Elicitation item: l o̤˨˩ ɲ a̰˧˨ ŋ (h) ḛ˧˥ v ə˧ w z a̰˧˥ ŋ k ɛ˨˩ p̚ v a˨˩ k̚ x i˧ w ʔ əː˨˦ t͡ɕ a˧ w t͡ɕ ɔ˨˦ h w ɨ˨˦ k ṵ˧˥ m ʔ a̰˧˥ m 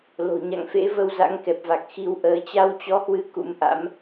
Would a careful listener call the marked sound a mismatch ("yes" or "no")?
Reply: yes